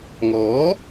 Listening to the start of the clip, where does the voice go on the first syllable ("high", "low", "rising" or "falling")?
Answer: rising